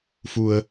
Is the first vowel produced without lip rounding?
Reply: no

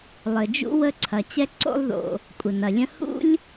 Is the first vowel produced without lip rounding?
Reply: yes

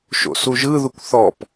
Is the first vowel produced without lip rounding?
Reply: no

